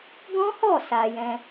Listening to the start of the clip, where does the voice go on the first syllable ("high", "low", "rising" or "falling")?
high